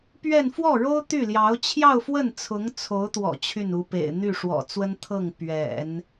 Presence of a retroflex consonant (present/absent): present